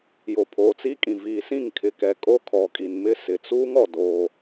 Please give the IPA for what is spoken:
j o˨ pʰ oː˨ t͡s i˦ kʼ ĩ˨ v iː˨ s ĩ˦˨ ŋ kʰ ɪ˨ k ɛ˨ kʼ o˦ kʰ ɔ˨ kʼ i˨ n m ɪ˦˨ s ɪ˨ t͡s uː˦ ŋ ɔ˨ d oː˦

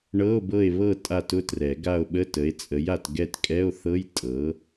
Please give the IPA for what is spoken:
ɳ ɤ˧˥˧ o̯ b ɤ˦˨ e̯ β ɤ˦˨ tʼ a˦˨ t ʊ˦˥ t r ɛ˨˩˦ ɡ a˦˨ o̯ ɓ ə˧˥˧ t ə˩˥ e̯ t͡sʼ ə˩˥ j a˨ t ɡ ɛ˦˨ t kʼ ɛ˧˥˧ o̯ θ ɤ˧˥˧ j tʼ ɤ˩˥

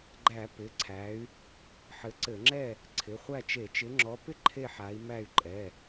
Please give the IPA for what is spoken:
ɡ͡ǃ æ˧˩˧ p ɪ˩˧˩ ǀʰ æ˨˦ y̯ | ħ ɘ˨˦ ǀ ɘ˧˩˧ ŋ͡ǁ ɛ˥˨ | ǀʰ ɪ˩˧˩ χʷ æ˥˨ t͡ʃ e˧˩˧ t͡ʃ ɪ˨˦ ŋ͡ǁ ɔ˨˦ p ɪ˥˨ ǃʰ e˥˨ ħ a˨˦ i̯ m æ˥˨ y̯ ǃʼ ɛ˩˧˩

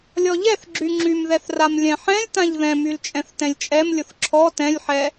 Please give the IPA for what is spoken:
lʲ ɔ ʎ ɛ θ ɡ͡ǁ y ŋ͡ǁ y m ð ɛ θ r a m lʲ ɛ̃ ħ ɛ̃ lʲ t ã ʎ ð ɛ̃ m y l t͡ʃʼ ɛ̃ θ t ɛ̃ lʲ t͡ʃʼ ɛ m lʲ ʊ θ ǁʰ ɔ t ɛ̃ lʲ ħ ɛ

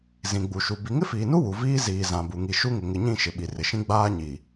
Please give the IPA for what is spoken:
z ĩ˨ ɡ͡b u˨ ʃ u˨ b i˨ ŋ ɪ˦ f iː˨ n u˦ w u˨ v iː˦ z iː˨ z ã˨ b u˨ ŋ i˨ ʃ u˦ ŋ ɪ˨ ŋ ɪ˨ ɲ ĩ˦˨ ʃ ɪ˨ ɓ i˨ r ɪ˨ ʃ ĩ˦ ɡ͡b aː˦ ɲ i˨

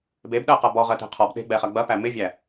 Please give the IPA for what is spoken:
b e b ɗ ɜ q ɐ b ɔ ʁ ɜ t e̤ qʰ ɔ b ɗ e̤ ɡ͡b ɛ χ ɐ ɡ͡b ɐ p æ m ɪ vʲ æ

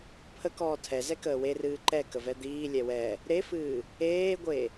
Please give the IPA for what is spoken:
pʰ ə k ɔː tʰ ɛ z ɛ k əː w e r ɨː ǃ ɛ k ə v ɛ d̪ iː lʲ ɛ w ɛ | ɾ e f ɨː | eː ɡʷ e

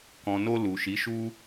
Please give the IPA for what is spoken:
k ɔ̃˨ n o˧ l u˨ ʃ i˨˦ ʃ u˦

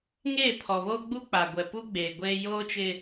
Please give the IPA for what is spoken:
ŋ eː˦˨ pʰ ɔ˨ β oː˦ ɡ͡b u˦ k͡p a˨ ɡʷ ɛ˨ p uː˦ ɡ͡b eː˨ ɡʷ eː˦ j oː˦ t͡ʃ ɪ˦

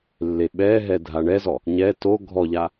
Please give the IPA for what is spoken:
lː e ɓ ɛ ɦ ɛ dʱ a ɳ ɛ z ɔ | ɲ ɛ t o ɡʱ ɔ ʎ a

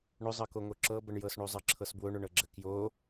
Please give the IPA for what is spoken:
ɳ ʊ zˤ ɤ k o ŋ o ǁ ɤ b ə ɳ j ɤ s ɳ o zˤ ɤ ǁʰ ɤ s b w ʊ ɳ ʊ ɳ ɤ ɡ͡ǁ ə k j o

